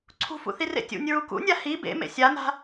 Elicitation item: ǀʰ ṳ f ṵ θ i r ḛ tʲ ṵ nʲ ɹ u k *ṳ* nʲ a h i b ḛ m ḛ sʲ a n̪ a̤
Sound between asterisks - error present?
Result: yes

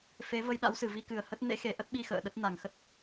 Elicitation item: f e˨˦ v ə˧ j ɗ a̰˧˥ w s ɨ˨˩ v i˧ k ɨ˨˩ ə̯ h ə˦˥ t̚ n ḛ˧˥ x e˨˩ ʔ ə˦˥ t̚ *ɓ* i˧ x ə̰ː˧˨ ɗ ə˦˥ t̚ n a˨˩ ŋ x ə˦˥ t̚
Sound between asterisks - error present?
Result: no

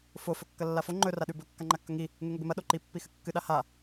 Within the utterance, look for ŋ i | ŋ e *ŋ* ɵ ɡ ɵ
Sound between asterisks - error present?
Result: no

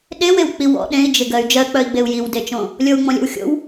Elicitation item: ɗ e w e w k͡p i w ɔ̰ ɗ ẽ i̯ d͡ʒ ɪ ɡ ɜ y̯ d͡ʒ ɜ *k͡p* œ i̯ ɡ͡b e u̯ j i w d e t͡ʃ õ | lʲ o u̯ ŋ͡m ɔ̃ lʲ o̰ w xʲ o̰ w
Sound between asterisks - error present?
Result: no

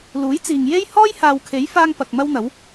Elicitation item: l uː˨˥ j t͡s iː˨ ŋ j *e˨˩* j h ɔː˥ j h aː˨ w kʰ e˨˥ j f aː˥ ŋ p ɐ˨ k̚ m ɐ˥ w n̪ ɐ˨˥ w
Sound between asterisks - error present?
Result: yes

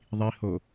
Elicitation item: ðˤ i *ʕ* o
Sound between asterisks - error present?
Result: yes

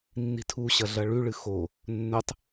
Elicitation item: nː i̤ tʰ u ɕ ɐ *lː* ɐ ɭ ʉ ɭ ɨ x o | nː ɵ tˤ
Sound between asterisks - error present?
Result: yes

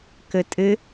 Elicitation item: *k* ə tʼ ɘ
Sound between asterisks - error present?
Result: no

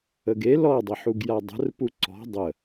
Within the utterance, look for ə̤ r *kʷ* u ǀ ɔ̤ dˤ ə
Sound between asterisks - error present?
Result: yes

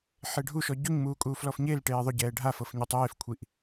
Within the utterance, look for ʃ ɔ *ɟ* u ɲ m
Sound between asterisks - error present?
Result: no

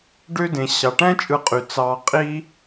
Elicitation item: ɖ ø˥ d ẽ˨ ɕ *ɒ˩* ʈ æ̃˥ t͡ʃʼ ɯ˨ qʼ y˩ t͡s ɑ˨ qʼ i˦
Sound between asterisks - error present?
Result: yes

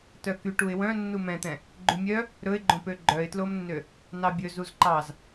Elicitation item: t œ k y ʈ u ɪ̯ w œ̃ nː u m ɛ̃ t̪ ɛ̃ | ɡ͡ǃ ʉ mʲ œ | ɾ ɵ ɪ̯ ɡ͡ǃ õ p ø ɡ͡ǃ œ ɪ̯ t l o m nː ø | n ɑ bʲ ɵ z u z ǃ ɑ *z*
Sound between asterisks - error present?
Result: no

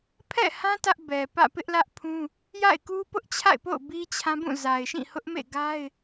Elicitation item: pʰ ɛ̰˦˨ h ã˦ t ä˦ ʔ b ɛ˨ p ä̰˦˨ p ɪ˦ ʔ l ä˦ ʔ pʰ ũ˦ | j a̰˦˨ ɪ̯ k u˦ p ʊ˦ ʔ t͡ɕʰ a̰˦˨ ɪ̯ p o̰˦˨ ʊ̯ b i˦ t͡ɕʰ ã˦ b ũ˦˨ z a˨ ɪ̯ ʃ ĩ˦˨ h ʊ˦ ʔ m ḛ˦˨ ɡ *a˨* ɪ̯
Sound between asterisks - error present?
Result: yes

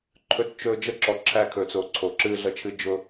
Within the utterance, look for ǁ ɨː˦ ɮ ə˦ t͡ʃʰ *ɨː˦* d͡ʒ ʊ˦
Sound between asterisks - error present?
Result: yes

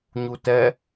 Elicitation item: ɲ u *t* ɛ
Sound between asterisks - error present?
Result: no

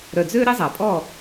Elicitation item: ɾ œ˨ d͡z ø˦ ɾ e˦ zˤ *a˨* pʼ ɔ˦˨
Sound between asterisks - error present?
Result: no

